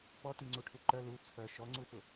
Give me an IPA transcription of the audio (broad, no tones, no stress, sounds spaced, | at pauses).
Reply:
p ɔ t i ŋ͡ǀ u ʈʰ u ǃ œ l u t͡sʰ œ ʃ ɔ ŋ͡ǀ u f ʊ